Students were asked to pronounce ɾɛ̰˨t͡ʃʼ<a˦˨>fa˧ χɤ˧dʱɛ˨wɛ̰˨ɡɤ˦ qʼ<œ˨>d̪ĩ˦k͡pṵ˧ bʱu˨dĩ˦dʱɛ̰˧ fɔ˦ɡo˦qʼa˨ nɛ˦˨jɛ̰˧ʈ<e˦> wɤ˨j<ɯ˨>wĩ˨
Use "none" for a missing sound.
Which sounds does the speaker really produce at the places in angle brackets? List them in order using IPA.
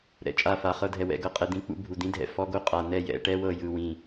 a˦˨, ɛ˨, ɛ˦, ɯ˨

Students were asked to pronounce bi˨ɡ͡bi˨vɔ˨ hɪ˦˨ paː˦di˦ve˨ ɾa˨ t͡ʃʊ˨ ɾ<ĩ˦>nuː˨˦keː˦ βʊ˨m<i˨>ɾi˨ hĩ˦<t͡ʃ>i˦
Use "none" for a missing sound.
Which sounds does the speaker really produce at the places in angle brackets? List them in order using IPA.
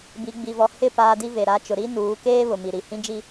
i˦, i˨, d͡ʒ

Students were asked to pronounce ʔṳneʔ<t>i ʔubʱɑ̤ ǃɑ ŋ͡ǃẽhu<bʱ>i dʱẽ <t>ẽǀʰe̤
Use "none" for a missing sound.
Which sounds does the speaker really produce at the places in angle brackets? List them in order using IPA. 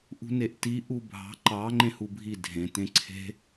t, bʱ, t

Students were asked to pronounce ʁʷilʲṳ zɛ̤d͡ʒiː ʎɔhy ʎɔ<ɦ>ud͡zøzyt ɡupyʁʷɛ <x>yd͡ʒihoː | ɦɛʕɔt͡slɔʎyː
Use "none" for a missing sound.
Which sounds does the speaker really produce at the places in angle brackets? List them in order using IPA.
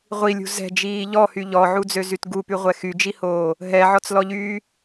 ʕ, x

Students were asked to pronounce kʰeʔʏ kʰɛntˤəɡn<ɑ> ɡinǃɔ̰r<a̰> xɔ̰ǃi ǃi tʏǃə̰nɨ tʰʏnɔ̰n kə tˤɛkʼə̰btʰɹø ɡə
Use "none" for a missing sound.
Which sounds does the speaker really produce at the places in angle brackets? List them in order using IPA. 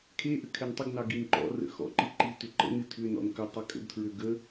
ɑ, ə̰

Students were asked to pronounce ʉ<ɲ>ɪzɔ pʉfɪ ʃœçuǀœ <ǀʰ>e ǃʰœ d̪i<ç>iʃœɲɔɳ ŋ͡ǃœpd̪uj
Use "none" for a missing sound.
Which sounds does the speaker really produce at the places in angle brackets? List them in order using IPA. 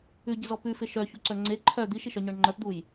ɟ, ŋ͡ǀ, ʃ

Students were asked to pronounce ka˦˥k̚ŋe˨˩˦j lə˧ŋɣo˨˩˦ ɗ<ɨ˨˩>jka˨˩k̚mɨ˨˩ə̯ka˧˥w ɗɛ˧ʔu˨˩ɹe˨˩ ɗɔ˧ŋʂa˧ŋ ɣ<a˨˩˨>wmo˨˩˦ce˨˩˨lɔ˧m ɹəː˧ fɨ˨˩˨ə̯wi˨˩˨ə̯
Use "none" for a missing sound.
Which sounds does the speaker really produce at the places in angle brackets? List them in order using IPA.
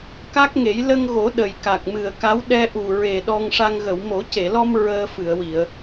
ə˨˩, ə˨˩˨

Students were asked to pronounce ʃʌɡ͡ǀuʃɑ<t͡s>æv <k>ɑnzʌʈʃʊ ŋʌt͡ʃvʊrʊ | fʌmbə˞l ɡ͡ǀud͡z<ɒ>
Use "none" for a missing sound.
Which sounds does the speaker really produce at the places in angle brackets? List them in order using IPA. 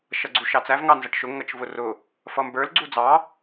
t͡s, ŋ, ɑ

